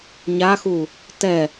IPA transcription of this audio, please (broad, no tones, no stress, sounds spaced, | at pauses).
ɲ a x u | t ɛ